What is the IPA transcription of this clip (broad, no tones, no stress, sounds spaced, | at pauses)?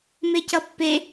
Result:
m e c ʌ pː e